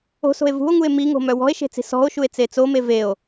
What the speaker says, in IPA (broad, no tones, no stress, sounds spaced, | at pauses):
o̤ s o̤ e̯ v ṳ o̯ ŋ u e̯ m i ŋ o̤ m œ w ɔ̤ e̯ ʃ e̤ t͡s i̤ s ɔ̤ o̯ ʃ u e̯ t͡s e t͡s o m e v e o̯